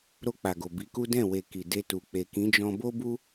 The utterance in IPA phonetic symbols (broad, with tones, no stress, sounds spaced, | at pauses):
ɾ o˧ k͡p a˨ ɡ o˨ b i˨˦ k u˦ d ɛ̃˦˨ w e˨ k i˨ d e˧ t u˨ k͡p e˨ k ĩ˨˦ d͡ʒ ɔ̃˧ b o˦ b u˦